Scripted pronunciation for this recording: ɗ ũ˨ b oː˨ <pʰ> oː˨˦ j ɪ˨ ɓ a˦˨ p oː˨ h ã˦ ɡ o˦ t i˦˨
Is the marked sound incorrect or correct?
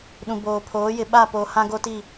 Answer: correct